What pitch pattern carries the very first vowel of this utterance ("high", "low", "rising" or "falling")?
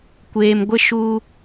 low